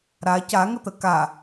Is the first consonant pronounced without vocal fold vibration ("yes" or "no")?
no